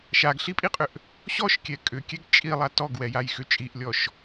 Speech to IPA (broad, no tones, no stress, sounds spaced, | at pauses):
ʃ a ɡ ɬ i pʼ i qʼ ʏ ʔ | ɕ ɔ ʃ kʲ ɛ kʼ ʏ kʲ ɛ ɡ t͡ʃʼ i lˠ a t ɔ ɡ w ɛ j a j x ʏ t͡ʃʼ i ʔ lʲ ɔ ʃ